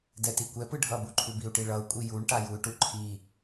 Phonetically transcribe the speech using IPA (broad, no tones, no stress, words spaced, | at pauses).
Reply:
dɛtikʷɛpɯ ɖʱʌbuǃʰu biu̯ʈiɭʌu̯kʷʼi juɳʈa juy̯ʈuǃʰi